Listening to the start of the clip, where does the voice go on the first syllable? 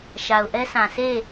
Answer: low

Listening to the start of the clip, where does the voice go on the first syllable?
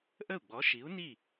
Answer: falling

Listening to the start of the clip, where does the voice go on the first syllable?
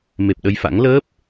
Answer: low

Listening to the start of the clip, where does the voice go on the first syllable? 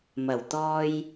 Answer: low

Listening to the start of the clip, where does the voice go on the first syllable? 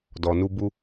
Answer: low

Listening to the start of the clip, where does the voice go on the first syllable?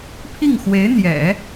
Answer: falling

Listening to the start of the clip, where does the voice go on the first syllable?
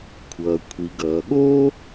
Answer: low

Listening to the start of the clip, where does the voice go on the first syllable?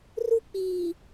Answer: high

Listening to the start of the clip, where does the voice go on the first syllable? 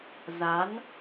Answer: rising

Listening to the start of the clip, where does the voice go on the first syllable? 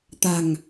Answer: low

